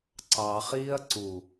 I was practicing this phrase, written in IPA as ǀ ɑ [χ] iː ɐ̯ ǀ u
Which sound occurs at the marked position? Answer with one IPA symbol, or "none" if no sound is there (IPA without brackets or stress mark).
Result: χ